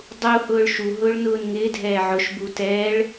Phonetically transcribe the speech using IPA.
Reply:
dˤ u h ʊː ɭ ʃ u ɦ ʊː ɭ n ʊː n ŋ ɪː dʱ ɛː ʕ ʊ ʃ b u t ɛː ɭ

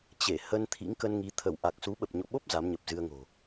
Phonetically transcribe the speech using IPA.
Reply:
t͡ɕ e˧˩ h ə˧ n t̪ʰ ḭ˧˥ ŋ k ə˧ n ŋ i˨˦ t̪ʰ ə˧˩ w ʔ a˨˩ k̚ s u˨˦ ɓ ə˨˩ p̚ ɲ o̰˧˨ ɓ o˦˥ p̚ z a˨˦ m ɲ ə˨˩ p̚ z ɨ˧ ə̯ ŋ o̤˨˩

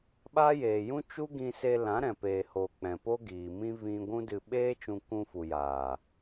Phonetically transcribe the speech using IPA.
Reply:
ɓ aː˦ j eː˨ j ũ˦ t͡ʃ u˦ ɡ ĩ˧ s e˧ l ã˨˦ ɾ ɛ̃˨ p eː˨ h oː˨ k͡p ɛ̃˨ p o˦ ɡ iː˨ m ĩ˦ v ĩ˧ ɡʷ ũ˦ d ɨ˧ ɓ eː˦ t͡ʃ ũ˧ k ũ˧ f u˨ j aː˨

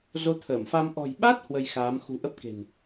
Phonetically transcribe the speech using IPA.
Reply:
z o˨˦ t̪ʰ əː˧˩ m f a˧ m ʔ ɔ̤˨˩ j ɓ a˦˥ t̚ h w ə˧ j x aː˨˦ m x ṳ˨˩ ʔ ə˦˥ p̚ k e̤˨˩ n

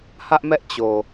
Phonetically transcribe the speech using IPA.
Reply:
h ä˦ ʔ m ɛ˦ ʔ t͡ɕ o˨

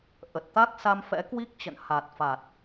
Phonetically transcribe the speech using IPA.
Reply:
ʔ ə˨˩ t̚ t̪ a˦˥ k̚ s a˧ m f ɛ̰˧˥ k w i˦˥ k̚ t͡ɕ ə̰˧˨ n h a˨˩ t̚ f a˨˩ t̚

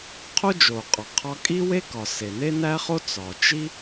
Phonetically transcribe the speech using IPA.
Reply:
qʰ o˥ d͡ʒ o˩ qʼ ɒ˩ qʰ ɒ˥ kʼ i˥ w e˥ k ɒ˩ s e˩ n e˥ n æ˥ χ o˥ t͡s ɒ˩ t͡ʃ i˥

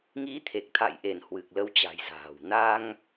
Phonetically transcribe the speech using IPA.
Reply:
ŋ i˨˦ t̪ʰ e˨˩ k̚ t̪ʰ a̰˧˨ j ʔ e˧˩ n h w ɨ˨˩ k̚ l ə˨˦ w t͡ɕ a̤˨˩ j z a̤ː˨˩ w n a˧ ŋ

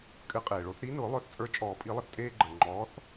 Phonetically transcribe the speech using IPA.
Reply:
kʼ ɨ˨˥ qʼ eː˩ ɭ o˨˩˦ θ ɾ i˨˥ n ʊː˨˩˦ lˠ œ˨˥ θ t͡sʼ ə˞˨˥ t͡ʃʼ ɔː˨˩˦ pʼ i˨˩˦ lˠ ə˩ θ tʼ eː˦ ɡ͡ǃ əː˩ ŋ͡ǃ ɔː˨˥ θ

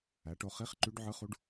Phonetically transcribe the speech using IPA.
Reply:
æ˩˥ ʈ o˧ χ i˧˥˧ χ ǃ y˧˥ ɖ ʕ ɯ˧˥ χ u˧˥ ɖ

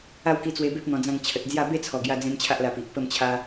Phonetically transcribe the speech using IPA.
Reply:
a˥˧ w k i˧ t͡s w e˧ b e˦ p̚ n̪ ɔ̃˧ d͡z ã˥˧ ŋ t͡ɕʰ ə˨ t̚ d͡z j a˥˧ b e˥˧ t͡sʰ ɔ˨˩ ɡ j a˧ d͡z ẽ˧ m t͡ɕʰ a˦ ʔ l a˧ p i˨ ʔ p ə˥˧ m t͡ɕʰ a˦

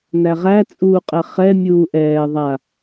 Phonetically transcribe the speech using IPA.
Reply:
n æ ʁ æ t͡sʼ uː qʼ ɛ χ ɛ mʲ uː ʔ ɛː ðˤ a

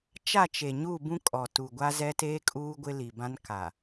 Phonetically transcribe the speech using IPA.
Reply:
t͡ʃ a˦˨ t͡ʃ e˨ ɲ u˦˨ b ũ˦ kʼ ɔ˨ t u˨ ɡʷ a˦ z ɛ˦ t eː˦ kʼ uː˦ ɡʷ ɪ˦ l i˨ b ã˦ n k a˨

